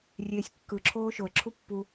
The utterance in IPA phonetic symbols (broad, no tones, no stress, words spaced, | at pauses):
rʲeːsʲkːɯǁʰoː ʃoə̯ǁʰu pːu